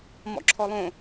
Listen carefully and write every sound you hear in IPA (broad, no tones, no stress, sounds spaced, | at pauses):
m ɔ̰ ǁʰ ɔ lˠ õ